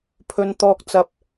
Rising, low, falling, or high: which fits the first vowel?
high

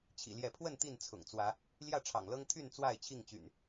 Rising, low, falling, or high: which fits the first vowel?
low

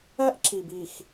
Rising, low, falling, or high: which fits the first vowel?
high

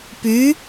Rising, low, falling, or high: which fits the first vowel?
rising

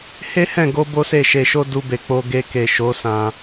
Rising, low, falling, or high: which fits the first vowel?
high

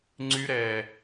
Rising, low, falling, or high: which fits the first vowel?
high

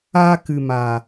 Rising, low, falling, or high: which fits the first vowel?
high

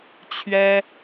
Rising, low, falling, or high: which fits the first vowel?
high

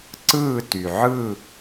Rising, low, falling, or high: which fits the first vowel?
falling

